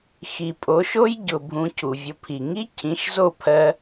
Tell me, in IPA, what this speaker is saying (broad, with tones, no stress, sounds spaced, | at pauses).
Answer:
x i˨ pʼ o˨˦ ʃ o˦ j ɟ ʊ˨ bʱ ũ˧ cʰ u˨ vʲ ʊ˧ pʰ i˨ ŋ i˦ cʰ ĩ˨˦ ʃ z o˦˨ pʰ ɜ˧